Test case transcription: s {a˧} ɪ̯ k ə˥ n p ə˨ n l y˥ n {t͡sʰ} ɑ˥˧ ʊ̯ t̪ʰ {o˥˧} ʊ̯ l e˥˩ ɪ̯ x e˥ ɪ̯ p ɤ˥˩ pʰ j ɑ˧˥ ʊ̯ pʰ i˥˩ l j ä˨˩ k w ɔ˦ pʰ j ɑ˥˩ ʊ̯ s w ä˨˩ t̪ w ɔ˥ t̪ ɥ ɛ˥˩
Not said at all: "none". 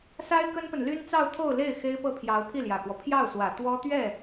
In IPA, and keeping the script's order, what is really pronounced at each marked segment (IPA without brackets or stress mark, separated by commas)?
a˥, t͡s, o˥˧